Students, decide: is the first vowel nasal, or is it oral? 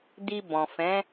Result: oral